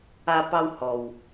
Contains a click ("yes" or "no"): no